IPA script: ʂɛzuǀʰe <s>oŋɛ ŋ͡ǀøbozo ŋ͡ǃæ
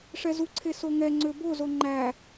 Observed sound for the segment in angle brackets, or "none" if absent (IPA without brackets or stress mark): s